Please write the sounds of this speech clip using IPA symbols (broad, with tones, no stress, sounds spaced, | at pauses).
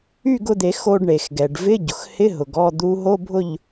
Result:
y˥˨ ɡ ʊ˧ d̪ e˨˩˦ x o˧ ɖ ɳ e˩ x ɡ ɛ˩ ɖ v ɪ˧˥˧ ɟ ʊ˩ x h ɪ˧˥˧ ɦ ʊ˩ ɡ ɔ˥˨ d̪ u˧˥ ɦ o˧˥˧ bʱ ʊ˥˨ ʎ